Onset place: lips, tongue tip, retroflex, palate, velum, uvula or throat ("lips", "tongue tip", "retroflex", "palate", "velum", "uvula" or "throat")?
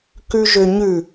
velum